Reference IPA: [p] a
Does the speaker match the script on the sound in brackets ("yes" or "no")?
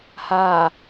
no